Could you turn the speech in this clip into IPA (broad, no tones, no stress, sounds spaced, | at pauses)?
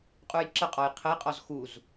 qʼ u j ǁ ə qʼ ɔ j qʰ ə j qʼ ɔ z x u z